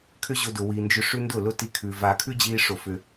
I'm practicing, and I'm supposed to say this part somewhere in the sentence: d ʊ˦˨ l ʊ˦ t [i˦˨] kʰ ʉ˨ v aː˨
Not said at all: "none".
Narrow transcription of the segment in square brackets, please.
i˧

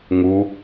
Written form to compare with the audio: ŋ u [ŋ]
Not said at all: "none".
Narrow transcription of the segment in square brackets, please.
none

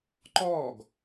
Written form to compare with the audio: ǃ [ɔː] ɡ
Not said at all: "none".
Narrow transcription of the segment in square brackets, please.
ɔː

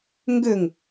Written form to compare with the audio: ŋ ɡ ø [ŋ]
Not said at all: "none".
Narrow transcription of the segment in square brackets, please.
ŋ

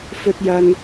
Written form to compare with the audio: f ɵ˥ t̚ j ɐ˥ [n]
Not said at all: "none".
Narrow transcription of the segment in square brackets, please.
n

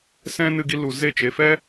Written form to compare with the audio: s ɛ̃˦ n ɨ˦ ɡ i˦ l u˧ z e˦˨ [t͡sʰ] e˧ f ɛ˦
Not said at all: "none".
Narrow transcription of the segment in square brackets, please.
t͡ʃ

